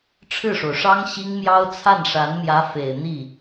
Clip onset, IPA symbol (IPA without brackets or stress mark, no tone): ʈ͡ʂʰ